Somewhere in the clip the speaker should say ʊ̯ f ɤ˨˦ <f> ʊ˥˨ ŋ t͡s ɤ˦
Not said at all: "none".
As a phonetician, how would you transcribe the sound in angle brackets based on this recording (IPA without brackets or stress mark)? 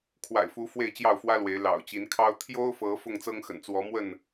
f